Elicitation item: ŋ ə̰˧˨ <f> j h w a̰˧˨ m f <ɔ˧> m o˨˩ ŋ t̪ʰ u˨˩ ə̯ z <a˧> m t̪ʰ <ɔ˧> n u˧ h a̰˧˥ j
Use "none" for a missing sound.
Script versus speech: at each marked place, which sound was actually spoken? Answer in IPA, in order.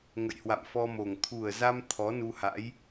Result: none, ɔ˧, a˧, ɔ˨˦

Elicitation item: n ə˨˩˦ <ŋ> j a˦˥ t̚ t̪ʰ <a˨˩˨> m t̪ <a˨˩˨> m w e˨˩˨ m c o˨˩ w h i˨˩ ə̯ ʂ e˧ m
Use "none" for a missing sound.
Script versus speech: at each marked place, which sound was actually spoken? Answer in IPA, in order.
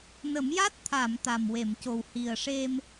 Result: m, a˨˩˨, a˨˩

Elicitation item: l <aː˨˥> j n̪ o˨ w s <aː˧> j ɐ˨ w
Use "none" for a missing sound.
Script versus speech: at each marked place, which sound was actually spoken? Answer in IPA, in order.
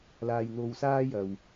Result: aː˨, aː˧

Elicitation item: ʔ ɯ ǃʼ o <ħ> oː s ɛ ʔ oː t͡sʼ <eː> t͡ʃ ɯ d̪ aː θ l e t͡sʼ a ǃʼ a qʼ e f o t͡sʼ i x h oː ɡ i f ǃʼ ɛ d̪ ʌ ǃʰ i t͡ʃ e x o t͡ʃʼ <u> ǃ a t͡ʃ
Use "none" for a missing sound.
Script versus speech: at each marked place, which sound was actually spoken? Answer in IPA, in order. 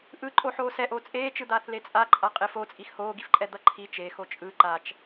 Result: ħ, eː, ɯ

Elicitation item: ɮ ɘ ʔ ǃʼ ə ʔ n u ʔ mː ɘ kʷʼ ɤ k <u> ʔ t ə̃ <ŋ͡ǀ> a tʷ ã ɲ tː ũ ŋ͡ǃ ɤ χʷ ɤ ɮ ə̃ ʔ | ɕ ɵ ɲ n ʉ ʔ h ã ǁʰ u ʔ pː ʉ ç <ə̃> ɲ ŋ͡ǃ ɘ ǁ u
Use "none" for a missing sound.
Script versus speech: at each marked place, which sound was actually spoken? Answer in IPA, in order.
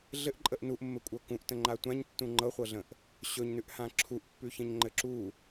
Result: ũ, ŋ͡ǃ, ə̃

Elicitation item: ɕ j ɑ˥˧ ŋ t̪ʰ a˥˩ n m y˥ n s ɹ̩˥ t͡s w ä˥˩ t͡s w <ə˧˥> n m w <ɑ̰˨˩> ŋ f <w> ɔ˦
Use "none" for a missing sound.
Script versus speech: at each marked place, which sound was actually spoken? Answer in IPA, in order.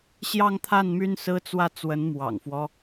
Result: ə˧˥, ɑ̰˨˩, w

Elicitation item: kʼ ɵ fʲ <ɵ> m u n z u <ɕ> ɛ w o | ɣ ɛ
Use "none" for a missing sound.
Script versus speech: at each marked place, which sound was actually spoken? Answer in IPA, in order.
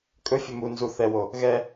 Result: ɵ, θ

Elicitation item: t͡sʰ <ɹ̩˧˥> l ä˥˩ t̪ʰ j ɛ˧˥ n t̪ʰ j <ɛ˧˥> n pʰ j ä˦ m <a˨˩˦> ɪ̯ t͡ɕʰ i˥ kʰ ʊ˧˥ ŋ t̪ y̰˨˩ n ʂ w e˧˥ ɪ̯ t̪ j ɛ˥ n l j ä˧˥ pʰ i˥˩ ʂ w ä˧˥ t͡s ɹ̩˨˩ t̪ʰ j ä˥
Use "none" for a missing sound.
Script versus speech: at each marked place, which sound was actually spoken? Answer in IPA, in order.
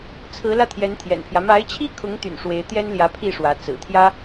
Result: ɹ̩˧˥, ɛ̰˨˩, a˧˥

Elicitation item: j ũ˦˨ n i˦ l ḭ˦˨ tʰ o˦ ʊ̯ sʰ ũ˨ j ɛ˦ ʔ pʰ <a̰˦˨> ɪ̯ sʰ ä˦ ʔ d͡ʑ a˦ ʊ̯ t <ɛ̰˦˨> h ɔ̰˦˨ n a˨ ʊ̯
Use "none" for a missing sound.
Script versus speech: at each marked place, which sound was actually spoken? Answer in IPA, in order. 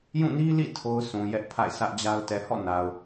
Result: a̰˦˨, ɛ˨

